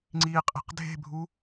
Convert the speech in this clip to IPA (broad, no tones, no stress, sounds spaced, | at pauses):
ŋ͡ǀ iː qʼ e̤ q dʱ e̤ bʱ u